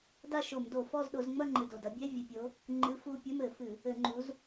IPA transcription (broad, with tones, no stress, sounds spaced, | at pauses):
d a˥˧ ʃ o˧˩˧ m d o˧˩˧ f ɔ˥˧ z ɗ o˨˦ z ŋ͡m ɐ˥˧ ŋ͡ǃ ɨ˨˩ d o˨˩ d ɐ˨˦ bʲ ɛ˧˥˧ vʲ ɨ˨˩ pʲ o˨˦ | ŋ͡ǃ ɨ˧˥˧ f u˥˧ pʲ ɘ˧˥˧ m ɘ˧˩˧ f ɨ˧˩˧ | ɘ˧˩˧ ŋ͡ǃ u˨˦ z